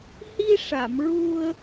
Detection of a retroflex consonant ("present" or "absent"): present